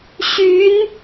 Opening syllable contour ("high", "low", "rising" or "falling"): rising